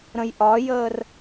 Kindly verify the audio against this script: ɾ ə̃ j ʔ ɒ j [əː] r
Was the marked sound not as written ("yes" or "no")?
no